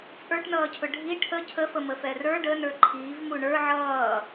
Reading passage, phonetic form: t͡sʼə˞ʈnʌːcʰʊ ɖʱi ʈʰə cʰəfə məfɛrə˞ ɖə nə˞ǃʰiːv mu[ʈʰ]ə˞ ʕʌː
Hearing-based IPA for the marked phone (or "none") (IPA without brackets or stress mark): ɳ